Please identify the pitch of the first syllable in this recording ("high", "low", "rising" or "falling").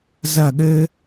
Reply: falling